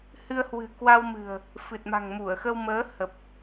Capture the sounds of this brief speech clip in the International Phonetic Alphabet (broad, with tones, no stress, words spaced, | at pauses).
hɨ˧ə̯hwɨ̤˨˩ kwa˧wmɨ̤˨˩ə̯ | fɨ˨˩t̚ ma̤˨˩ŋmu˧˩ə̯xə˧w məː˨˦hə˨˩p̚